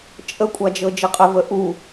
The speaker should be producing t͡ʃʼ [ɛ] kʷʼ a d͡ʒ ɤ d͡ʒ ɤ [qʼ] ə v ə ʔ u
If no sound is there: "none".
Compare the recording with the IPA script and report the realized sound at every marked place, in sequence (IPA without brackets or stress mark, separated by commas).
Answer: ə, qʼ